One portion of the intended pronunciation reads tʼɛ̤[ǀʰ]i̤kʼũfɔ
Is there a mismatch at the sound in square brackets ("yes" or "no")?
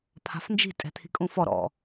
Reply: yes